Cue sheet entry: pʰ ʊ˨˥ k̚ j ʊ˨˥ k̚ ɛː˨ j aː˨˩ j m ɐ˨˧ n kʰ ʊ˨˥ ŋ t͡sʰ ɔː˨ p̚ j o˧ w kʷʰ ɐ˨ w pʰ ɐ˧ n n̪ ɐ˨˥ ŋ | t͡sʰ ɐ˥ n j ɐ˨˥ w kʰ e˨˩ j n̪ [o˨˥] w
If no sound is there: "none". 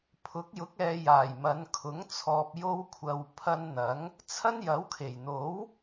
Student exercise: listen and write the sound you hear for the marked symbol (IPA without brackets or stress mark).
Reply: o˨˥